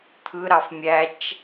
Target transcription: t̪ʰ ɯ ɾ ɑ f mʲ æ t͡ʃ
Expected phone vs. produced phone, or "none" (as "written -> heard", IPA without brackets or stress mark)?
none